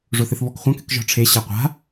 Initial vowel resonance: oral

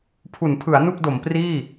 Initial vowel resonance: oral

